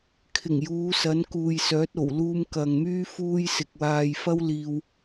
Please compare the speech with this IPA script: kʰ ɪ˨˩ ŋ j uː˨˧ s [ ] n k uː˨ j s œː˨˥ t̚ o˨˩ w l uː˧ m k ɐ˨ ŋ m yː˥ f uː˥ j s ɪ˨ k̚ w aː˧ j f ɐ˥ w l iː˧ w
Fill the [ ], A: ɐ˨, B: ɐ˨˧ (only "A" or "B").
B